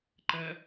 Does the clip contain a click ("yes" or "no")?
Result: yes